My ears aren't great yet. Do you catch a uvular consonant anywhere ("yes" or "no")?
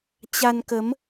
no